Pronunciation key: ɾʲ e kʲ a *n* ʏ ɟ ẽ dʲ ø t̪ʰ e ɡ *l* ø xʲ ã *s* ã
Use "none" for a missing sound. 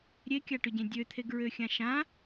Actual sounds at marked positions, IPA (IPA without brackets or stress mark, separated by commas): ʈ, ɹ, ʃ